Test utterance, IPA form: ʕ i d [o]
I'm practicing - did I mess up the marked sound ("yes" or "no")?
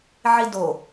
no